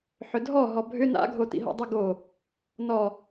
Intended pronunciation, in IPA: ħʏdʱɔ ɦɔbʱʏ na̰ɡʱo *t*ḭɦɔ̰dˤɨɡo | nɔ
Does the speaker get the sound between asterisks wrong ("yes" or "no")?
no